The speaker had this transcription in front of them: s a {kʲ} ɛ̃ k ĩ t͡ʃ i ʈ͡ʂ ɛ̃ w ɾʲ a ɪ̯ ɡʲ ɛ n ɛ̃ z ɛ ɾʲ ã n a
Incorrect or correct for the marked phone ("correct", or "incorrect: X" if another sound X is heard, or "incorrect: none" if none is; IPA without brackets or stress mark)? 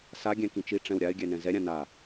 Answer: incorrect: ɡʲ